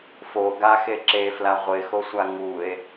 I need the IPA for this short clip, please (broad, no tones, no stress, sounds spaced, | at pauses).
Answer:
f o ɡ a x e ǁ e f l a ʁʷ ɪ x o sʷ a ŋ u e̯